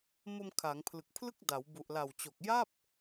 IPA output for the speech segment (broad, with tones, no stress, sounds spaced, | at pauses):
m o˧ m kʰ aː˩˦ ŋ pʰ l ɯ˨˩ k̚ pʰ l ɯ˥˩ k̚ d a˩˦ w b u˨˩ ʔ l a˨˩ w t͡ɕ o˨˩ k̚ j a˥˩ p̚